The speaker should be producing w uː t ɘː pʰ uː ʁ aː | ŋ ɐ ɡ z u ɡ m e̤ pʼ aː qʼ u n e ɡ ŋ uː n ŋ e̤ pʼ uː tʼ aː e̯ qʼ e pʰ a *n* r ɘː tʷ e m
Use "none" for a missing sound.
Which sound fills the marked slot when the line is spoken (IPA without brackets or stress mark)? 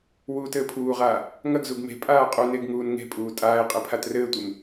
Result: t